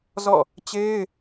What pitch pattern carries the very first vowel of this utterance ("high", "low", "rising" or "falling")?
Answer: falling